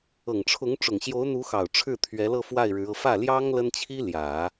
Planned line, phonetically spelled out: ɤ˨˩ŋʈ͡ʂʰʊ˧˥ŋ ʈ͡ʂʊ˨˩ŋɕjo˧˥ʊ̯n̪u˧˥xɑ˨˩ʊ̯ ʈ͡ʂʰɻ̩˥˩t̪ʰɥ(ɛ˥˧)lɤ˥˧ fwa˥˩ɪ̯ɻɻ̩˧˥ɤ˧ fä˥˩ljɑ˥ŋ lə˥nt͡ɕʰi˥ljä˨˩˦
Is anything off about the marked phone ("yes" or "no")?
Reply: yes